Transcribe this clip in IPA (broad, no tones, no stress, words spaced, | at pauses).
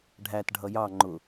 ɖʱæt ɖʱʌjɑ ŋ͡ǃʊ